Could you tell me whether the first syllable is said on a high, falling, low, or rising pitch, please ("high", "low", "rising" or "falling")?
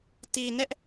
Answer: low